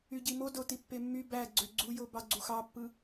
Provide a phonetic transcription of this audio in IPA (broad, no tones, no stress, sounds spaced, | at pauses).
y ɟ i m o d o t i pː e mː y b æ ɡ͡ǀ ø ɡ͡ǀ u j o b ɑ ɡ͡ǀ u x ɑ pː ɯ